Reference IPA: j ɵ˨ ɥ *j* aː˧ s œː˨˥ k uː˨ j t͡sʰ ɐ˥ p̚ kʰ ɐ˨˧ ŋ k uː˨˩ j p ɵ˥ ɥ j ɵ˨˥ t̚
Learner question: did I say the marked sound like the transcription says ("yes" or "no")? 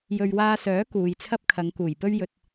no